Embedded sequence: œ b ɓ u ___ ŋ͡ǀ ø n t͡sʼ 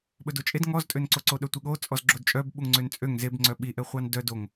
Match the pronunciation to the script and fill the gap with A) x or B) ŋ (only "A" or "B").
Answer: B